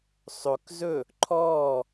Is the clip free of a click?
no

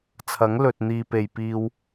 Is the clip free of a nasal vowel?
yes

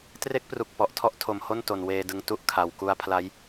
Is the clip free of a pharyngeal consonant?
yes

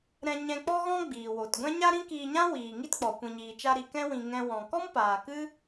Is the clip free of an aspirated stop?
yes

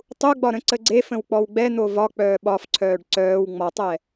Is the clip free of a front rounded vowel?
no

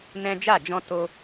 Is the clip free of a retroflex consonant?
yes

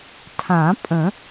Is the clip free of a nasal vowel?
no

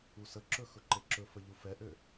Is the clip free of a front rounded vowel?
no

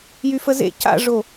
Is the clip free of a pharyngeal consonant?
yes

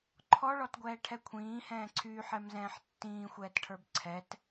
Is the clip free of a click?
no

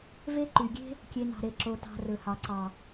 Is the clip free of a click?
no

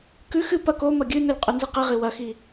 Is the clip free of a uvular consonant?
no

